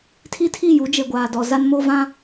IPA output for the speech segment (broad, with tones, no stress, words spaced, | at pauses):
tʰi˦tʰi˦˨ju˨˦ d͡ʒe˨ɡʷaː˨ dɔ˨ za˦nmo˦ vã˦